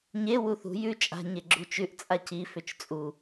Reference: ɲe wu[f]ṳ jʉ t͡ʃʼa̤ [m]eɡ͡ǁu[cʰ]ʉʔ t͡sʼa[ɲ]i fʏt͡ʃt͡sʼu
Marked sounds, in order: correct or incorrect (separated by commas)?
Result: incorrect, incorrect, incorrect, incorrect